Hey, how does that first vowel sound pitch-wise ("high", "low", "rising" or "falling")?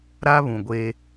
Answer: high